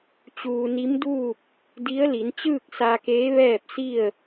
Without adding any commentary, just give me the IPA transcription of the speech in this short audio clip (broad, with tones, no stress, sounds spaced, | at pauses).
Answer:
t͡ɕ uː˧ n i˧˥ m d uː˥˨ p̚ | d i˧˥ ə̯ l i˩˧ n t͡ɕ ɯː˥˨ k̚ s a˧ k eː˧˥ ʋ ɛː˥˨ p̚ s i˥˨ ə̯